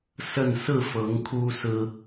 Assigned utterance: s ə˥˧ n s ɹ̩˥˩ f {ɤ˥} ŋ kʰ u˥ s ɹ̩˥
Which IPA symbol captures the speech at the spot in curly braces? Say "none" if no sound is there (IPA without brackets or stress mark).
ɤ˧˥